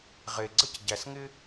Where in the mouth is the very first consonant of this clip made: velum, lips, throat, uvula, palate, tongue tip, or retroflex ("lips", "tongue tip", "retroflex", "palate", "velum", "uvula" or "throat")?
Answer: uvula